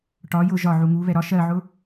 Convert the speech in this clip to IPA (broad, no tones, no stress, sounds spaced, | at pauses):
ʈ ɒ j ʊ ʒ ɒ ʕ u ŋ u β ɛ ɾ ɒ ʃ ɜ ʕ ʊ